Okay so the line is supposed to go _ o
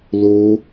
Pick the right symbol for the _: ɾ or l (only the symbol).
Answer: l